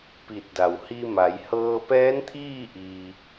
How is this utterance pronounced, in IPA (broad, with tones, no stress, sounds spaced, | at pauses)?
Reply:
p i˧˩ t̚ d a˩ w h i˧ m a˩˧ j h ɤː˧ p ɛː˧˥ n t̪ʰ iː˥˨ ʔ iː˧